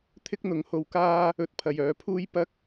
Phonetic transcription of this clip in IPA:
t̪ʰ ɪ˥ k̚ n̪ ʊ˨˥ ŋ h o˧ w k aː˥ | ɵ˨˥ t̚ pʰ ɐ˨ j œː˨˥ pʰ uː˥ j p ɐ˥ k̚

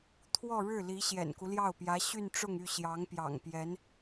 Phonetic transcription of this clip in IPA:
t̪ʰ w ɔ˥˧ ɻ ɻ̩˥˩ l i˧˥ ɕ j ɛ̰˨˩ n k u˦ l j ɑ˥˩ ʊ̯ p j ä˧˥ ɕ y˥˧ n ʈ͡ʂ ʊ˥˧ ŋ y˥˩ ɕ j ɑ˧˥ ŋ p j ɑ̰˨˩ ŋ p j ɛ˧˥ n

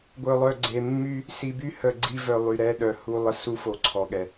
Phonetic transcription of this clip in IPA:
ɡʷ œ˨ lˠ œ˨ ɡ͡ǀ e˨ mː y˦ | s i˨ b y˦ h ə˦˨ ɡ͡ǀ i˦ v œ˨ lˠ y˨ ɾ ɛ˦ ɗ œ˨ h u˦ lˠ ə˦ s u˦ f o˨ ǀʰ ɔ˨ ɠ ɛ˨

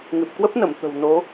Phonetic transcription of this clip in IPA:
ŋ ɨ˨˩ p̚ k w ə˦˥ p̚ n ə˧˩ m t̪ ə̤˨˩ w n o˨˦

